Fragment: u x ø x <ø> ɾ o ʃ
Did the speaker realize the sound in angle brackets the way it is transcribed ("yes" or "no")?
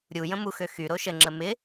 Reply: no